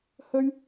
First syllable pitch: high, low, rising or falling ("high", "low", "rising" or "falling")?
high